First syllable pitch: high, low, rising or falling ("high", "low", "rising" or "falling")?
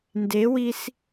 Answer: rising